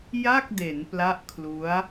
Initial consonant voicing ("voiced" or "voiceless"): voiced